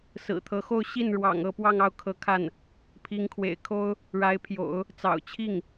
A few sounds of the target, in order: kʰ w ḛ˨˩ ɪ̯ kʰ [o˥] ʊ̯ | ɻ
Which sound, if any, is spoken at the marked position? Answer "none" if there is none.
o˥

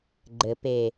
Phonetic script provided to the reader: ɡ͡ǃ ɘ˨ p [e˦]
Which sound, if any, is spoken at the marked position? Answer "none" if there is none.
e˨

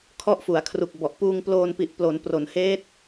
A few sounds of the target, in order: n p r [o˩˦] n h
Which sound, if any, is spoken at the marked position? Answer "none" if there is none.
o˩˦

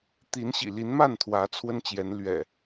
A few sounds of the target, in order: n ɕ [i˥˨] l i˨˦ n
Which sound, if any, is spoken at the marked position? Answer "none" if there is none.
ḭ˨˩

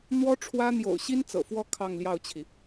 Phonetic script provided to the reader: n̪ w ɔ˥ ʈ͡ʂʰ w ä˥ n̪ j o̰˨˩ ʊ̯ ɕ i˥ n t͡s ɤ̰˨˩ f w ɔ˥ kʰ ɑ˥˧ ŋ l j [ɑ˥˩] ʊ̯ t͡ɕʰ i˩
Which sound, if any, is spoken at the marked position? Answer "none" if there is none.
ɑ˥˩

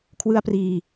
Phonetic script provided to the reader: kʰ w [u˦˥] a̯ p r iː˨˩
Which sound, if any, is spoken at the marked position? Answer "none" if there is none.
ɯ˦˥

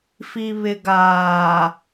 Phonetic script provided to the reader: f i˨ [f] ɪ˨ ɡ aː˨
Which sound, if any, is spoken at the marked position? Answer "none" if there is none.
β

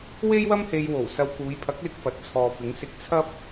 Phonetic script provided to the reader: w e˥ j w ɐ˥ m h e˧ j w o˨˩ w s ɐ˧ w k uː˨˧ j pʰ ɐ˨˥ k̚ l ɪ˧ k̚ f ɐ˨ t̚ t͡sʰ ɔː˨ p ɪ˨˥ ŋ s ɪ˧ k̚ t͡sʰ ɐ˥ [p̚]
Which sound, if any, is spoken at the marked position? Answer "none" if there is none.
p̚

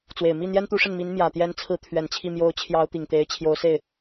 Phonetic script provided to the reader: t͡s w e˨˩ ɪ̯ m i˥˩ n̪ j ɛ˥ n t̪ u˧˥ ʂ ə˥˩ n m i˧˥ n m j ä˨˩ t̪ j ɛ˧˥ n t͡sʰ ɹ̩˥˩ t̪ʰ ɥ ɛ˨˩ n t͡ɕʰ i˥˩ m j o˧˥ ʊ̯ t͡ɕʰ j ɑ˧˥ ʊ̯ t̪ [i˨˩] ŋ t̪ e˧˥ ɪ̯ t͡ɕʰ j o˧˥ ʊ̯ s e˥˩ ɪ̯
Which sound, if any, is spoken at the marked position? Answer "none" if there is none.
i˨˩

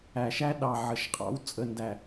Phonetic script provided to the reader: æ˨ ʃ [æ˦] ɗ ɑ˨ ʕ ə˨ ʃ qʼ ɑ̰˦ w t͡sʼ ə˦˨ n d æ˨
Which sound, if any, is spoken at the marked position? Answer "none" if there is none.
æ˦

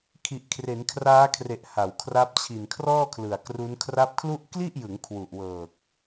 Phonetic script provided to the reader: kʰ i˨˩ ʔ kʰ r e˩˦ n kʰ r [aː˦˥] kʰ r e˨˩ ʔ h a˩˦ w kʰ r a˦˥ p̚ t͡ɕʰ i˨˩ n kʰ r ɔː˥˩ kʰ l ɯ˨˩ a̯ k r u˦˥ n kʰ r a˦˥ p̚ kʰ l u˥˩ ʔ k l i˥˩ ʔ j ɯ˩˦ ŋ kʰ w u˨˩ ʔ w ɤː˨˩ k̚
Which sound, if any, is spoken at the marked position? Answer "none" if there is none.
aː˦˥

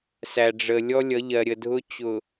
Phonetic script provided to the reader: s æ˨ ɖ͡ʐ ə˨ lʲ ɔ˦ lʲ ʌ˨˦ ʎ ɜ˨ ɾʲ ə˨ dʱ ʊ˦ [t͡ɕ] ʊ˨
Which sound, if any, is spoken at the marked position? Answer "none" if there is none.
t͡ɕ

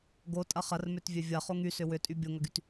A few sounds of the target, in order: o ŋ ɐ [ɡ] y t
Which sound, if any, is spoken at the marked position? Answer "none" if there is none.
ɡ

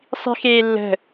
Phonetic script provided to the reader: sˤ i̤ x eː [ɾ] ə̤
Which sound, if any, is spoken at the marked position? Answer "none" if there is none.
lː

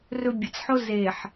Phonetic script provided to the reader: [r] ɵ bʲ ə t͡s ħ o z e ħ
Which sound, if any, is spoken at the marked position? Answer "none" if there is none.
r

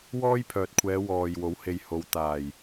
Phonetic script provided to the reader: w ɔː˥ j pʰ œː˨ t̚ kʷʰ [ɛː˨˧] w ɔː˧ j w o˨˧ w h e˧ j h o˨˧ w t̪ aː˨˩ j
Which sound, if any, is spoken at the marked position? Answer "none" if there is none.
ɛː˨˧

